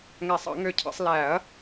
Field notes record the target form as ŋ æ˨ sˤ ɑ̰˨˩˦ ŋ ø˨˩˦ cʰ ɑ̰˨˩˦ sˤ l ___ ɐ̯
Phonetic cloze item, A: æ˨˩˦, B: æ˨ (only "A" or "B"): A